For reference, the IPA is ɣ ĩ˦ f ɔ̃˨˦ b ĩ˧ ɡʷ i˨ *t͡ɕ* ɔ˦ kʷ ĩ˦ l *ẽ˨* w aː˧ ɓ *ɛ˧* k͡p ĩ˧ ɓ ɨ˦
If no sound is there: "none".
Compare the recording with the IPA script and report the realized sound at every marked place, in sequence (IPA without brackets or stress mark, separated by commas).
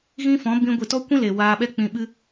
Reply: t, e˨, ɛ˦